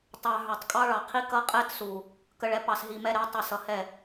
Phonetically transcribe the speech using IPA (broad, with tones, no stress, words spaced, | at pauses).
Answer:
tˤɑ˧ ɦə˞˨tˤkʼɑ˦ ɭɑ˨qʰi˦ kʌ˦qʼɛ˦tsu˨ | kə˧ɭɛ˧ pɑ˧sɦi˧mɛ˦ɾɛ˨˦ tˤʌ˧sʌ˨ hɛ˦˨